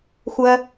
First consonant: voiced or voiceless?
voiceless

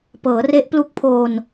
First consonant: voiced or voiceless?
voiceless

